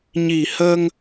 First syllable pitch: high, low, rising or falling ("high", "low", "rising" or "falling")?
low